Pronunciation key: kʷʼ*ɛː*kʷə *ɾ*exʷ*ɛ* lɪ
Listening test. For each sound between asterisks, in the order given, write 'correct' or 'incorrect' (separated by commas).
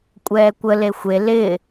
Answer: correct, incorrect, incorrect